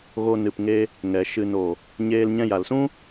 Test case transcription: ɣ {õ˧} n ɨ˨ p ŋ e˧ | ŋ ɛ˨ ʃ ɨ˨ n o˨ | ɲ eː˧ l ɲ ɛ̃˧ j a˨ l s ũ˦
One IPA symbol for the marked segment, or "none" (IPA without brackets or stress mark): o˧